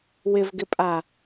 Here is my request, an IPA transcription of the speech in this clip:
w ɪ v ɡ ɪ pʼ a

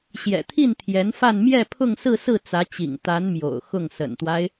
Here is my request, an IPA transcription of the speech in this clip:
ɕ j ɛ̰˨˩ t̪ʰ i˥˩ n t̪ʰ j ɛ˧˥ n f a˥˧ n m j ɛ˥˧ pʰ ʊ˥˧ ŋ s ɹ̩˥˧ s ɹ̩˥˩ t͡s ä˧˥ t͡ɕ ḭ˨˩ ŋ t̪ a˧˥ n m j o̰˨˩ ʊ̯ x ʊ˥˩ ŋ s ə̰˨˩ n t̪ w a˦ ɪ̯

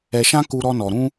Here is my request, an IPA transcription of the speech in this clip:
ɛ˧ ʃ ã˦ k u˦ ɾ ɔ˦ n ɔ˧ ɾ ũ˦

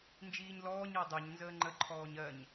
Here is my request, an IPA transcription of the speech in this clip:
n d͡ʒ iː ɲ l ɔː ɲ ɤ dˤ ɜ ɲ n z əː ŋ͡ǃ ə ǃʰ ɔː ɲ ɜ ɲ

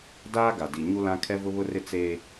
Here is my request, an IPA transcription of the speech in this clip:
d aː˦ ɡ a˨ d i˨ ɲ u˦ l ã˦ kʰ ɛ˦ v ʊ˦ β ʊ˦ r ɪ˦ t͡s eː˦

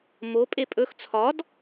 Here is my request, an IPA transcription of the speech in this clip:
m o pʼ e pʼ ɵ x t͡sʰ ɒ d

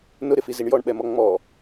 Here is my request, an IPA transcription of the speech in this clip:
n ʊ ɾ ɪ f i z i ɳ j ɔ ɳ ɓ ɛ m ɔ ŋ͡m ɔ

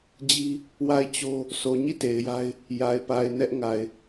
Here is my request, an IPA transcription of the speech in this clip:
d͡ʑ i˦ | w a˦˨ ɪ̯ t͡ɕ o˦ | sʰ o˨ ɲ i˦˨ t e˨ ɪ̯ j a˦ ɪ̯ | j a˨ ɪ̯ p a˨ ɪ̯ n ɛ˦ ʔ ŋ a˨ ɪ̯

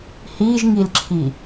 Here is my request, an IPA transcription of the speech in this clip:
h i ʒ ŋ i l ǁʰ i

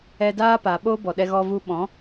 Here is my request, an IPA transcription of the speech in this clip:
ɛ˧ d aː˦ p a˨ ɓ oː˦ b ɔ˨ ɗ ɛ˧ ɣ ɔ˧ v u˧ ɓ ɔ̃˨˦

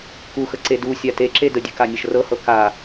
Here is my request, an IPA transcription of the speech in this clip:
k u x ə ǀ e d u sʲ a t e ǁ e d ə dʲ ɨ k a nʲ ə ʃ r ɤ h ɤ k a

